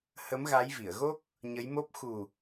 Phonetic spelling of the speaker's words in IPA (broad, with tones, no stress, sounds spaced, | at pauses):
h ə˨˦ m ɣ a˨˦ j v i˧˩ ə̯ ɣ o˦˥ k̚ | ɲ ə˨˦ j m o˦˥ p̚ x u˨˩